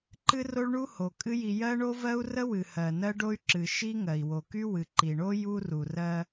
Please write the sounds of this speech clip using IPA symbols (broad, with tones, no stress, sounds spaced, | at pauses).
ǃ ɨ˥ r o˥ ɭ ɳ u˥ h o˩ kʼ ɨ˥ j i˧ j ɜ˥ ɳ o˥ v ɜ˥ u̯ r ə˥ w ɨ˩ h ɜ˩ n ɜ˥ ɖ o˥ y̯ ǁ ɨ˩ ʃ i˥ ŋ ɜ˩ i̯ w o˩ k y˥ w ɨ˩ ǃ i˩ ɳ o˥ j u˥ r u˩ r ɜ˧